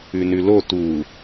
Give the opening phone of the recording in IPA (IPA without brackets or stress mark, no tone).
ʉ